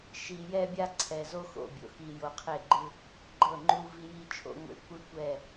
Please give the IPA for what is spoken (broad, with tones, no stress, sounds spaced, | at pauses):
ʃ i˨ j ɛ˦ bʲ a˦ ǀʰ ɛ˨ z o˦ x o̰˨ bʲ o̰˨ x i˨ j o˨ qʰ e˦˨ ɡ͡ǃ ɯ˦ | ɡ͡ǃ ɤ˦˨ ŋ͡ǃ u˦ v i˦ j i˦ t͡ʃʰ o̰˦ ŋʷ ḛ˦ kʷ ɯ˦ kʷ ɛ˦˨